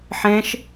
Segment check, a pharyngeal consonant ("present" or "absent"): present